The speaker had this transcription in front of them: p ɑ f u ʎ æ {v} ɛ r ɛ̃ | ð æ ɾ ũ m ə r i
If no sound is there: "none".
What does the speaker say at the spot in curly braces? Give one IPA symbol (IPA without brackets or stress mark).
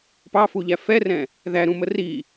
f